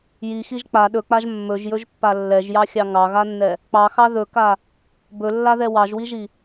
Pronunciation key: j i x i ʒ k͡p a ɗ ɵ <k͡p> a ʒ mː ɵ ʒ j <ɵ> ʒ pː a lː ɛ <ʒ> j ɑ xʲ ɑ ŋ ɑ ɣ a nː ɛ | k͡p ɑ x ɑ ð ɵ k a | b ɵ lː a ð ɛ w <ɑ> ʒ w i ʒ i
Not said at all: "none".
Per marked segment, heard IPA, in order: k͡p, ɵ, ʒ, ɑ

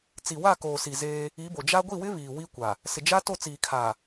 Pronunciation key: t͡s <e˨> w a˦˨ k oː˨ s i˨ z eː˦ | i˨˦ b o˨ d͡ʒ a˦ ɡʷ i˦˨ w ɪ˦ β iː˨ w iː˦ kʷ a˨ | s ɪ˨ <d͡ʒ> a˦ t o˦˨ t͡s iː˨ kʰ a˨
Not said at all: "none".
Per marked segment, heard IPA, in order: i˨, d͡ʒ

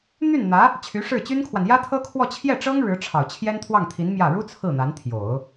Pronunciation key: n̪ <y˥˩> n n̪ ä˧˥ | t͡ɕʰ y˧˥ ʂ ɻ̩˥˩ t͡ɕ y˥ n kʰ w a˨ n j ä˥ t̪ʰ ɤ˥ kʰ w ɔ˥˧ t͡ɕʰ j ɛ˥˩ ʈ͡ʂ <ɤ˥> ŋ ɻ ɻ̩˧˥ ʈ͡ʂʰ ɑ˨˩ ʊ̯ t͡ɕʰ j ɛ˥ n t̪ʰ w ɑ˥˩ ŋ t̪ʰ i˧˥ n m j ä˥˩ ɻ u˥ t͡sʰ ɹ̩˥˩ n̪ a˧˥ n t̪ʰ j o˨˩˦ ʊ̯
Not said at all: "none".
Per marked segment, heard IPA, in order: y˥˩, ɤ˥

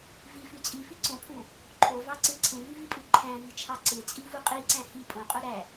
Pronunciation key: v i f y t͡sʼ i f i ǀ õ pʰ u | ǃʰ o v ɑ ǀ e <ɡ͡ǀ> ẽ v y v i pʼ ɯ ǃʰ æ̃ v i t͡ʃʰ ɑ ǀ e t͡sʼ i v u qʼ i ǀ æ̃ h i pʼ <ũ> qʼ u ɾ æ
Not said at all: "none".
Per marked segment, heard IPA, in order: ǀʰ, õ

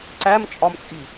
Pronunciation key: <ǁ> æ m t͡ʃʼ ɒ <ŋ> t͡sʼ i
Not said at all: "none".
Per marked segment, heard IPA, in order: ǀ, m

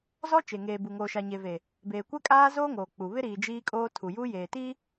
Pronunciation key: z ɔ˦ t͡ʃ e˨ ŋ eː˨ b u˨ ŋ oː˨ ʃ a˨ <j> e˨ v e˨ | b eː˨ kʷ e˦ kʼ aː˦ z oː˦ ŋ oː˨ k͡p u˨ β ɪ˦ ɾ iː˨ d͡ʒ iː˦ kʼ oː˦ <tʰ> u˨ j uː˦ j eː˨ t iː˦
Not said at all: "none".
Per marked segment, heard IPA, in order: ɲ, tʰ

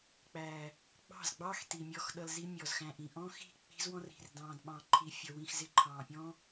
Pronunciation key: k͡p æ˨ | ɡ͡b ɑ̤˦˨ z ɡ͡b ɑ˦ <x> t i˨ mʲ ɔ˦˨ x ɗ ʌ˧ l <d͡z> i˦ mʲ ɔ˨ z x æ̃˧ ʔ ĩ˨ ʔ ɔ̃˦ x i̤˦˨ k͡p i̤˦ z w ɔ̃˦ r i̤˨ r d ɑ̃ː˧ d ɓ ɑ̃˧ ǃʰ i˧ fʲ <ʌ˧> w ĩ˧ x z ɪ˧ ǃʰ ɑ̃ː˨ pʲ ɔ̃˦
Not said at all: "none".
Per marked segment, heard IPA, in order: x, z, ʌ˧

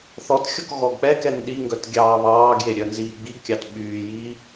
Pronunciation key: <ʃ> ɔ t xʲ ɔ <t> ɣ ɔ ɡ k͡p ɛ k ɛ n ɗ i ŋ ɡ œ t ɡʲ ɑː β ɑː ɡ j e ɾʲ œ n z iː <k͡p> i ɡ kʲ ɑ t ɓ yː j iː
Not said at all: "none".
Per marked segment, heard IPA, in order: θ, k, ɡ͡b

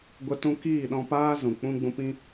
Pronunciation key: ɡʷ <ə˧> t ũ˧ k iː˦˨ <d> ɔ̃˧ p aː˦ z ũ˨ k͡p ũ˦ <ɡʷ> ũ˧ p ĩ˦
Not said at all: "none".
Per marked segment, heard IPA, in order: ə˧, ɗ, ɡ͡b

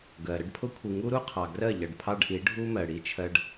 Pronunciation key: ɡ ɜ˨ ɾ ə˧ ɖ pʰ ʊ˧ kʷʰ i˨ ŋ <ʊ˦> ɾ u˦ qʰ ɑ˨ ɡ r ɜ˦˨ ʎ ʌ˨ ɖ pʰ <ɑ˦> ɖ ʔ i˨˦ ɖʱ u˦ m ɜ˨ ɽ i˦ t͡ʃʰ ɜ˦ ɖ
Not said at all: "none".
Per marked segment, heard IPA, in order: u˦, ɑ˦

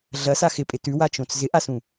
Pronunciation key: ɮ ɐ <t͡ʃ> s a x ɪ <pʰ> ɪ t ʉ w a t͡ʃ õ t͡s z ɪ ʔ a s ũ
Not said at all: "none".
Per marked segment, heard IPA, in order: none, pʼ

